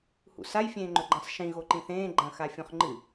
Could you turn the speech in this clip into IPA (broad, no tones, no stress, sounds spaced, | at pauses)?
h ṵ s a j fʲ ẽː ŋ͡ǃ ɵ ɡ͡ǃ ɐ̃ sˤ ʃ ĩ ɣ o ǃ ĩ θ ẽː ɡ͡ǃ ɐ̃ x a fʲ õ χ ŋ͡ǃ ɨ